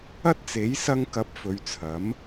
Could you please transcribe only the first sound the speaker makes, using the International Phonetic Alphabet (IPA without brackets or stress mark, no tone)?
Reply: ɐ